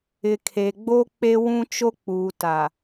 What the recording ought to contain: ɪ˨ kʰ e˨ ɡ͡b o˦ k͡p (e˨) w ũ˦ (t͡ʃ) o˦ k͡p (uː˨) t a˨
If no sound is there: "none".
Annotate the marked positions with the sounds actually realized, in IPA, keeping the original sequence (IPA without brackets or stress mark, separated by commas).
e˦, t͡ʃ, uː˨